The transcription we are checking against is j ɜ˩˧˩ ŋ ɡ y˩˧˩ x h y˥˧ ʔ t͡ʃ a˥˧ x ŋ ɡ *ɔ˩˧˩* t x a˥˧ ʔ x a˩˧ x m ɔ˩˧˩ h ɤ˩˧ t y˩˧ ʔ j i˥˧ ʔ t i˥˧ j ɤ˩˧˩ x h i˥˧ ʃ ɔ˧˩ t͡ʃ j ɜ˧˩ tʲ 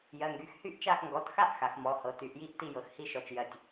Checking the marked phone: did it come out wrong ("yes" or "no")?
no